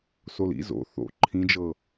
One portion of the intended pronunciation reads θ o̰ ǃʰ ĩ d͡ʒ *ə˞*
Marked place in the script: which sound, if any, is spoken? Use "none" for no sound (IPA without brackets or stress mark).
ɤ